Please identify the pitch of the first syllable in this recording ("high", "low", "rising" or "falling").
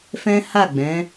high